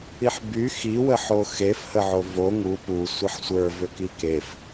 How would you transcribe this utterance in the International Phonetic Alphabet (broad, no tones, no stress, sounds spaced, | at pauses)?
i ħ b y x i w ə ħ o x e f h ə ʕ o v o ŋ u p u sʷ ə ħ sʷ ə˞ v ʏ k i k e f